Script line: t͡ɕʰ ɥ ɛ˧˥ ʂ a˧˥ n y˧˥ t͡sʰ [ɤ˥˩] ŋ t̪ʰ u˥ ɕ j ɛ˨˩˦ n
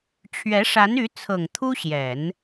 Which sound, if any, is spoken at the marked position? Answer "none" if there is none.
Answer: ɤ˨˩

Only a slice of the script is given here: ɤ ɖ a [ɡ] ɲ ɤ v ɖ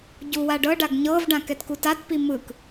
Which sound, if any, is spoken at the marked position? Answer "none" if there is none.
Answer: ɡ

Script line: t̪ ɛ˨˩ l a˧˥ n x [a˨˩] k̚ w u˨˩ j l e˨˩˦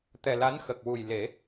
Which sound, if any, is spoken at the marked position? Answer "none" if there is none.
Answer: ə˨˩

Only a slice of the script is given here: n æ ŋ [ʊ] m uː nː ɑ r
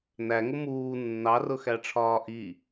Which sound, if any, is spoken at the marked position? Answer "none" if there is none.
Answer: ʊ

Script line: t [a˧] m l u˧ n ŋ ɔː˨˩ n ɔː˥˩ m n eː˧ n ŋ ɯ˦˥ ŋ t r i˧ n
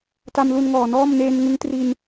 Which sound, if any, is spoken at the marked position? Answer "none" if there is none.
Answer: a˧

